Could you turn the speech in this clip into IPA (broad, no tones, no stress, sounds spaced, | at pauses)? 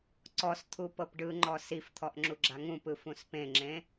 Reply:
ǀ ɔ s t̪ʰ u p ɤ p ɖ ɯ ŋ͡ǃ ɔ s i f t̪ʰ ɔ ʔ ŋ͡ǁ u ɡ͡ǁ a ŋ ũ p ɯ f ũ s p ẽ ŋ͡ǁ ẽ